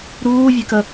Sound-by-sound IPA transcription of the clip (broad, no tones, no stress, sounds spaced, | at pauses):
ɾ uː vʲ e k ə